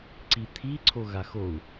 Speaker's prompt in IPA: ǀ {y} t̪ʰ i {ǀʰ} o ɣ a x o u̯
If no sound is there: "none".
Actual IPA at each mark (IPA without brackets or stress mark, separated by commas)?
i, ǀʰ